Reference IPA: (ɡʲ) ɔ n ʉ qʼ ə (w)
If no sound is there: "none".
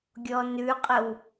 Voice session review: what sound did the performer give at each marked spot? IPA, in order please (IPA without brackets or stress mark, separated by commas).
ɡʲ, w